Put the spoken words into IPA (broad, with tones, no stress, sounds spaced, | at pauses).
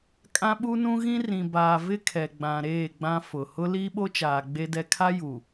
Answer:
kʼ ã˦ ɓ u˦ n ũ˦ ɣ ĩ˦ r ĩ˨ b aː˨ v ɪ˦ kʰ ɛ˨ ɡ͡b ã˨ ɾ eː˦˨ ɡ͡b ã˦ f ʊ˨ h ʊ˦ l iː˦ ɓ o˦ t͡ʃ aː˨ ɡ͡b e˦ d ɛ˦ kʰ a˦ j u˨